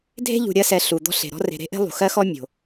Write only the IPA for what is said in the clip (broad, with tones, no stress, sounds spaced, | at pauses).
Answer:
dʱ e̤˥ ʎ ṳ˨ ɾʲ ɜ˦ s ɛ˨ ɬ u˩ d̪ ɔ̤˦ ɬ e̤˩ ɾ ɔ̤˥ r e̤˨ ɾ e̤˥ ʔ e̤˥ lˠ ṳ˩ x ɜ˥ x ɔ˥ mʲ o̤˩